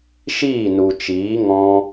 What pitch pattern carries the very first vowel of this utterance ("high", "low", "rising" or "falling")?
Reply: falling